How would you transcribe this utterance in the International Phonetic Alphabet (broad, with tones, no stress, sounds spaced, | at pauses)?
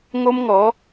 ŋ o˦ m ŋ ɔ˨˦